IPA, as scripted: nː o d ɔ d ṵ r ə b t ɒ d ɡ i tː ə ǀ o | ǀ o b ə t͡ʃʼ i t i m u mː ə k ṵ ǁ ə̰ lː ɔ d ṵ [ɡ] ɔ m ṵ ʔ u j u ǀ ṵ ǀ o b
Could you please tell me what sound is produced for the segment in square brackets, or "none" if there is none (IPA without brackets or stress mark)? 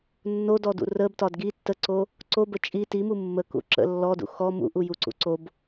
x